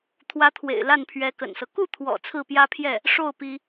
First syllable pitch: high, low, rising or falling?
rising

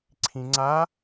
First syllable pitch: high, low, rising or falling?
low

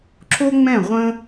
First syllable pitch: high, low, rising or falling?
high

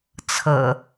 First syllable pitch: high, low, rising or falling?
low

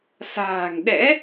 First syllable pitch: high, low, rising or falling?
low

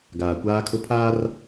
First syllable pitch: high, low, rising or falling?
low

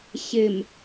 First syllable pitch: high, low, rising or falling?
low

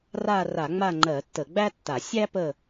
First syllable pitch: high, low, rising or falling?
falling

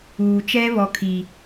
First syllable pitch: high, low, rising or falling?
low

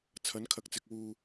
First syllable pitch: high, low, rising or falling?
rising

